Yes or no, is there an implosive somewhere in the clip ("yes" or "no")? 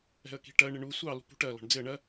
no